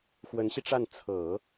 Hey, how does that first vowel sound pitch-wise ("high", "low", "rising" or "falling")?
rising